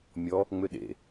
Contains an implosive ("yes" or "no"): yes